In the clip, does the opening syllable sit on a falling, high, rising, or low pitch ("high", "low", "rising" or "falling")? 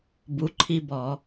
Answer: rising